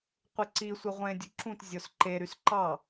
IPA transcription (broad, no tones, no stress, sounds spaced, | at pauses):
qʷ e ǀ i sʷ e ʁʷ ẽ dʲ u ǁ ũ t zʲ o s ǃ e ɾ y s ǃ ɑ